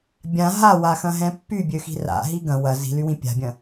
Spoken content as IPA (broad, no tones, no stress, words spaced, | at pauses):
bʲã ɦawaxɐ̃ɦɛ̃ pːybʲøxi̤ ra̰ɦi ɡɐ̃ wɐ zi̤lywĩ pʲa̤bʲɐ̃